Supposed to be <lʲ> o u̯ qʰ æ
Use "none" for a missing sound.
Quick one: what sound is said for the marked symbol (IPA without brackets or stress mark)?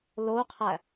l